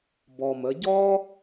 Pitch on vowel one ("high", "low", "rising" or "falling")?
low